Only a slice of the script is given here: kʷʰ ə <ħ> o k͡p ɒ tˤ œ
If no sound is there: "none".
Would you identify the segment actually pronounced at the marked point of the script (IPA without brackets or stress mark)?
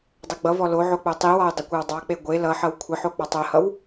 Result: ħ